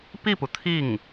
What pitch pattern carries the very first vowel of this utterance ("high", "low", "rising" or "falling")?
falling